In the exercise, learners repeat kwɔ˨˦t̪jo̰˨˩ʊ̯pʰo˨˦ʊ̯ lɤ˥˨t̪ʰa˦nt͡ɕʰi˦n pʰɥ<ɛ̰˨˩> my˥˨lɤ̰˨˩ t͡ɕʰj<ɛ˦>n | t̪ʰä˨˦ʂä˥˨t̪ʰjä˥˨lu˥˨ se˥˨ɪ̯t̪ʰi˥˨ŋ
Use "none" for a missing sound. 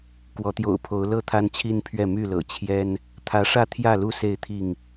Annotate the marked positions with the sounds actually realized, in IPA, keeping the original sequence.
ɛ˥˨, ɛ˦

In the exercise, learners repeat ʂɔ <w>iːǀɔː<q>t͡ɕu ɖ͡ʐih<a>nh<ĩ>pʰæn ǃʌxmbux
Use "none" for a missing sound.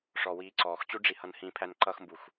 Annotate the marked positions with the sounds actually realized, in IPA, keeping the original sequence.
w, x, ʌ, ĩ

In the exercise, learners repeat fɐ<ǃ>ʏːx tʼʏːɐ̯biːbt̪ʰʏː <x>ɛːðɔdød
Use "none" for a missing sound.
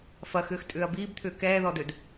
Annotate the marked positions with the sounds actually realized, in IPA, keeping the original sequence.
x, k

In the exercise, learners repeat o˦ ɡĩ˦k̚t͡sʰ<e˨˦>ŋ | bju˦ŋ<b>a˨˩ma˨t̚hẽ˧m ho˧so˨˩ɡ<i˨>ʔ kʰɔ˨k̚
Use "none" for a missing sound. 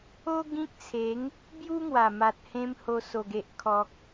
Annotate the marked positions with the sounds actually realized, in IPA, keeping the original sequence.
e˨˦, w, e˨

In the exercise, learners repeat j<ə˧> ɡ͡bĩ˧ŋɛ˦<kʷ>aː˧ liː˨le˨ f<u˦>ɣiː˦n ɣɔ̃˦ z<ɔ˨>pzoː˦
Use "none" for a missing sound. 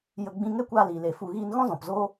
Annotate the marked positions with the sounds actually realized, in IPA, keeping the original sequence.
ə˧, kʷ, u˧, ɔ̃˨

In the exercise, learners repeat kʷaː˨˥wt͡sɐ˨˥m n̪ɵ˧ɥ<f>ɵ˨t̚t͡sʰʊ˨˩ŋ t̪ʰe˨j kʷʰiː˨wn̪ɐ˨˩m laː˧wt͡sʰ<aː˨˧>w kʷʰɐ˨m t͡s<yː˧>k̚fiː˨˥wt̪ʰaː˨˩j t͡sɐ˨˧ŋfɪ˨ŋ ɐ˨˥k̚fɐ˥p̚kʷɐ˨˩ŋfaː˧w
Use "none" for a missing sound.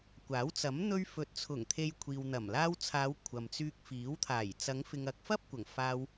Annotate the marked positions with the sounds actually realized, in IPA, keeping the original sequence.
f, aː˨˧, yː˧

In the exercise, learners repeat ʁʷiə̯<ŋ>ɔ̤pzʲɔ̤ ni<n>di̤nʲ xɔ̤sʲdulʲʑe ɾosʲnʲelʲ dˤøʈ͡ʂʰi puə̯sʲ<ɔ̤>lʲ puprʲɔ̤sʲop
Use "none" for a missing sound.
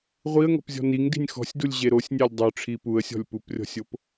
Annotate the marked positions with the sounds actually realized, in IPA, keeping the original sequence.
ŋ, ŋ, ɔ̤

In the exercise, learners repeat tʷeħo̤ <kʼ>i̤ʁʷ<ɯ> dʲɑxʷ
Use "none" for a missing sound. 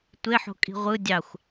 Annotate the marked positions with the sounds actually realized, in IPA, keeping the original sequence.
kʼ, ɯ

